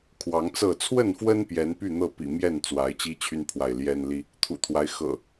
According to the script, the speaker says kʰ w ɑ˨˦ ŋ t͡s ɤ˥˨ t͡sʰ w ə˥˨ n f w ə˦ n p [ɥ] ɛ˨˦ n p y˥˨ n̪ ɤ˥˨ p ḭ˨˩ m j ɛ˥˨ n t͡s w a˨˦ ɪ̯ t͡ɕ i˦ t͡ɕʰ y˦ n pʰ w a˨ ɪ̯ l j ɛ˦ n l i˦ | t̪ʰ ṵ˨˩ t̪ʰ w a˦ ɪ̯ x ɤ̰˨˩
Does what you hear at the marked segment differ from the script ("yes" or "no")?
yes